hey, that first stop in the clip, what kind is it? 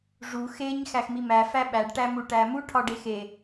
implosive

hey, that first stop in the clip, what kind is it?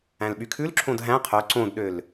implosive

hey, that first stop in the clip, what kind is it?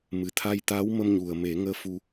aspirated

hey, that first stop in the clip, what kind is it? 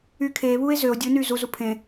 aspirated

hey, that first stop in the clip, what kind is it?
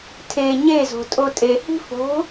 aspirated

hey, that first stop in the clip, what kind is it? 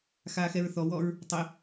plain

